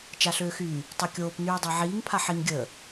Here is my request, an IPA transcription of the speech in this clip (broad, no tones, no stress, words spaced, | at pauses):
t͡ʃaɬøːxyː | tˤøkʲoːp nyːdˤaʕiːŋ pʰaħiŋ ɡʲəː